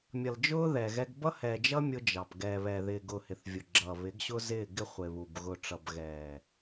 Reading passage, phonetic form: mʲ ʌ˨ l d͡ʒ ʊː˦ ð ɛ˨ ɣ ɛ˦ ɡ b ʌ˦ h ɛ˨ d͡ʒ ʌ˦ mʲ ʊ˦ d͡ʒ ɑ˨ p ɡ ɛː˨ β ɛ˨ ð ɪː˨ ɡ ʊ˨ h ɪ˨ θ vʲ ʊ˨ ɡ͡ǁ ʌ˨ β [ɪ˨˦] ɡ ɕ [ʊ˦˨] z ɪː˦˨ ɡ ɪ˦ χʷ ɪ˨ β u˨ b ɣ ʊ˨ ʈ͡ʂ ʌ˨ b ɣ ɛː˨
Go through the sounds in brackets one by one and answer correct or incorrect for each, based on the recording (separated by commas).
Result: correct, incorrect